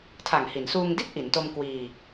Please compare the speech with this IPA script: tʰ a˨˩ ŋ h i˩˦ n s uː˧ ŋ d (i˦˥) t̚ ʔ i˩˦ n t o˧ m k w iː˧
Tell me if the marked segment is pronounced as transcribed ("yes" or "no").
no